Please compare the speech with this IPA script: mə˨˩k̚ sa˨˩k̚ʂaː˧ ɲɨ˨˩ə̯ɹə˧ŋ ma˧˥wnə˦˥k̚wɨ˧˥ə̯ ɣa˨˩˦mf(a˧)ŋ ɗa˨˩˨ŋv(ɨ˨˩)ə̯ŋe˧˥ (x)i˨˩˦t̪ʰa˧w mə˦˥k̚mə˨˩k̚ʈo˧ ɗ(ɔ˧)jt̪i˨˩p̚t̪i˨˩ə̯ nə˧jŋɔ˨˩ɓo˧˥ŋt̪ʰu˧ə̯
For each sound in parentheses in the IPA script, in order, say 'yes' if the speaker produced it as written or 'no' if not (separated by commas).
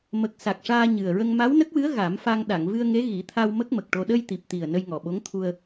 yes, no, no, no